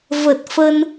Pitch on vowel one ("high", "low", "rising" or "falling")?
low